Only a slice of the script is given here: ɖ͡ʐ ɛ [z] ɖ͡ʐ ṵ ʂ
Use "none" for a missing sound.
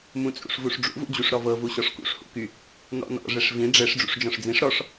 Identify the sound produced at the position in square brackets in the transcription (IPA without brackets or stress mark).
ʂ